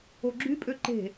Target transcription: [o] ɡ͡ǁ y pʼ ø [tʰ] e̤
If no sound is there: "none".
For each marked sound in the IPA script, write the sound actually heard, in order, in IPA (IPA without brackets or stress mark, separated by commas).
o, ǃ